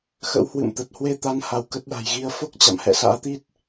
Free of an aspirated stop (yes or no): yes